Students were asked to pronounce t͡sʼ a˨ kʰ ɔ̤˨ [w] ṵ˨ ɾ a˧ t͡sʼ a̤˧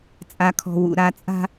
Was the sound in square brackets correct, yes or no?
yes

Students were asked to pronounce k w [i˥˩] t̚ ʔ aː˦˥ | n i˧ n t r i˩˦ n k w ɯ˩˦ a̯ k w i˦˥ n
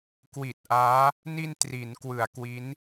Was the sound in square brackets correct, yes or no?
no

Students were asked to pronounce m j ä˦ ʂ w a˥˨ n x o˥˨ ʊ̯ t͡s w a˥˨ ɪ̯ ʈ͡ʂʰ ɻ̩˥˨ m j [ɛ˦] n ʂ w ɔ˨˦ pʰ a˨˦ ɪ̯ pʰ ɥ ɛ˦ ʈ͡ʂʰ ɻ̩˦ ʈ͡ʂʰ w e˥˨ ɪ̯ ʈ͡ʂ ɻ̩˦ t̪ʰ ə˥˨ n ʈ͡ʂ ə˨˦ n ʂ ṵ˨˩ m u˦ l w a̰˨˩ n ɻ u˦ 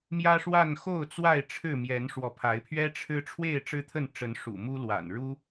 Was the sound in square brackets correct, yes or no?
no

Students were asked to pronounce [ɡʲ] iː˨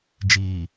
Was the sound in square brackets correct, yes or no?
no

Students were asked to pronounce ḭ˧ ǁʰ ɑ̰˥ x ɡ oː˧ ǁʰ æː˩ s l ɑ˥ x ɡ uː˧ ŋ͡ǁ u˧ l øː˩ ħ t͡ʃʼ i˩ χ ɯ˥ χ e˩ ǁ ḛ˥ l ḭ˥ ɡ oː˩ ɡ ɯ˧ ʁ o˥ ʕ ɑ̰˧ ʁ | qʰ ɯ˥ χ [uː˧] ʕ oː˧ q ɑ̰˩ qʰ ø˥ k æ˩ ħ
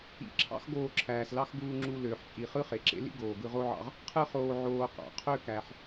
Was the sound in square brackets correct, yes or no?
no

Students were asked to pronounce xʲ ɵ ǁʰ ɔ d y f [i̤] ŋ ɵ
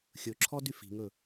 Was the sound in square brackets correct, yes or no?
yes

